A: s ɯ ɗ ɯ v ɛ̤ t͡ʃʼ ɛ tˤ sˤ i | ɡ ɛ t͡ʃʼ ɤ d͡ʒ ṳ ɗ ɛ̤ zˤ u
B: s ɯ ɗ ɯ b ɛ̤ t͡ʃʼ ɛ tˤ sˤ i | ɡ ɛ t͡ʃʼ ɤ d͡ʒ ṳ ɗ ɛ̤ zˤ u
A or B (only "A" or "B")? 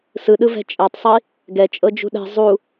A